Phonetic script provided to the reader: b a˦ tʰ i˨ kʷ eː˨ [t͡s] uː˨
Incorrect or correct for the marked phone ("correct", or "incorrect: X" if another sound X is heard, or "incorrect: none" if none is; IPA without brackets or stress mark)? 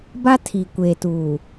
incorrect: t